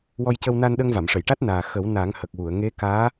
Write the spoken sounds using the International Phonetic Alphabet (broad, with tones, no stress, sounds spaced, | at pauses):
w ɔ˧ j c ə˧ w n a˧ n ɗ ə˧ ŋ v a˨˩˨ m ʂ ə˨˩˨ j ʈ a˦˥ t̚ n aː˨˩ x ə˨˩˦ w n a˨˩˦ ŋ h ə˨˩ k̚ w u˨˩˨ ə̯ ŋ e˧˥ k aː˧˥